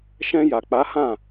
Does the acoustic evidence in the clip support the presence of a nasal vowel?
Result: yes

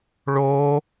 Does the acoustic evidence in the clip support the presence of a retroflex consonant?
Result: yes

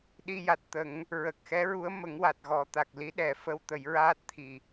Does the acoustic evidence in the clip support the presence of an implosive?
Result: yes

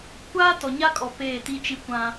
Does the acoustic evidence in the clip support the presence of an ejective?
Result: yes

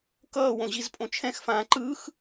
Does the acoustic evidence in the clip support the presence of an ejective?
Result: yes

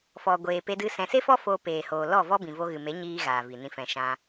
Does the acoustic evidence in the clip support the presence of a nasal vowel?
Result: yes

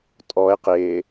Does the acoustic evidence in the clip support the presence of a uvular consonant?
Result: yes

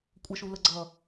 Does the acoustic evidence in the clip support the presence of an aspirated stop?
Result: no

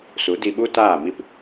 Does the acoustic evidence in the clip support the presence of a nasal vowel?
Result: no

